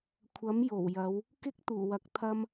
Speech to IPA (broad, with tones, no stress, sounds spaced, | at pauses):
kʷʰ ɐ˨˥ m j o˨˩ w j ɐ˨˧ w | k ɪ˥ k̚ t̪ uː˨˩ w ɐ˨˥ k̚ t̪ʰ ɐ˧ m